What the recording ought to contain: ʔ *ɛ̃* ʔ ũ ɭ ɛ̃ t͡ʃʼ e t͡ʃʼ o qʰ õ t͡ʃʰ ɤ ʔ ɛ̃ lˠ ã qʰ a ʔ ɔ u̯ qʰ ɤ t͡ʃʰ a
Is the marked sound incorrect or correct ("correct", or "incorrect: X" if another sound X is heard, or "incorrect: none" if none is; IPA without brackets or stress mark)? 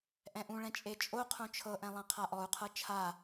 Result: correct